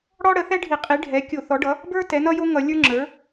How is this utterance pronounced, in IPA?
ɽ ɔ˥ ɽ ə˩˥ θ ɛ˥ ɖʱ i˧˩˧ qʼ i˩˥ ɖʱ ɛ˩˥ kʲ o˧˩˧ θ ɔ˩˥ ɖ ʌ˩˥ | b ə˞˥ t ɛ˩˥ n ʌ˥ j o˥ ŋ ʌ˧˩˧ lʲ ə˞˥ ŋ͡ǁ ə˞˩˥

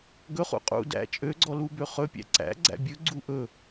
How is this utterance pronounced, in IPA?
ɡ ɵ χ ṵ qʼ ṵ d æ̰ t͡ʃʼ ø ɡ͡ǀ ɔ l u b ø χ ɵ pʲ æ̰ ǀ æ̰ ɡ͡ǀ æ̰ bʲ ɵ ɡ͡ǀ u ʔ ɵ

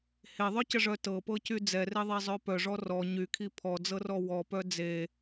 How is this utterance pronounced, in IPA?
h e ðˤ œ c ə ʐ œ t ɤ p ɤ c y d͡z ɛ r e ðˤ ɛ zˤ œ p œ ʐ ɔ r ɔ ɲ y kʰ i pʰ ɔ d͡z ɤ r ɔ w ɔ p œ d͡z e

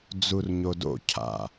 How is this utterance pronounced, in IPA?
d͡z u r ɲ o d o̰ cʰ a̰

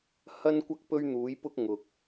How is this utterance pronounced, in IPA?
h ɐ˥ n kʷ ɐ˥ k̚ p ɵ˥ ɥ n̪ uː˨˥ j p ʊ˥ k̚ ŋ ʊ˨ k̚

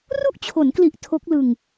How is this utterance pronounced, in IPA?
r u˥˩ ʔ t͡ɕʰ o˩˦ n k l i˨˩ ʔ tʰ o˦˥ k̚ l ɯ˧ ŋ

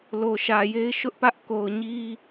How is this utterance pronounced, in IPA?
l o˨ ʃ ä˨ j e˦ ɪ̯ ʃ ʊ˦ ʔ p ä˦ ʔ k o˨ ʊ̯ ɲ i˦

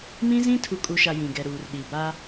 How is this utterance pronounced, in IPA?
m ĩ˦ z ĩ˦ tʰ u˨ kʼ u˨ ʃ a˨ j ĩ˨ ɡ ɛ˨ ɾ uː˨ r ɗ i˨ b a˦

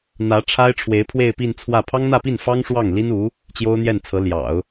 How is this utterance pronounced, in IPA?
n̪ ä˧˥ ʈ͡ʂʰ a˥ ɪ̯ ʈ͡ʂʰ w e˧˥ ɪ̯ pʰ w e˥˧ ɪ̯ p i˥˧ n t͡sʰ w ä˥˩ pʰ ɑ˥ ŋ n̪ ä˥˧ p i˥˩ n f ɑ˥ ŋ ʂ w ɑ˥˩ ŋ l i˥ n u˧˥ | t͡ɕ j o˥ ʊ̯ n̪ j ɛ˥˩ n t͡sʰ ɤ˧˥ l j ɑ̰˨˩˦ ʊ̯

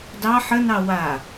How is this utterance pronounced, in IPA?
d ɑ ħ ə n ɑ w a

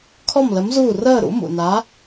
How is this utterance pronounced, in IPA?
kʰ ɔ˥˨ m l ə˨˥ m z uː˥˨ r əː˥˨ ɾ ṵ˨˥ m ṵ˩ n a˨˥

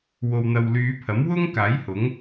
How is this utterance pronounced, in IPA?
w o˨ w n̪ ɐ˨ w l yː˨˧ pʰ ɐ˨˥ m w ʊ˥ ŋ k aː˨˥ j h ʊ˨˥ ŋ

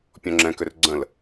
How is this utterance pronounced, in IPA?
pʲ ɔ̃ ŋ͡ǁ ɛ̃ k ʏ r ɡ͡ǀ ə̃ l

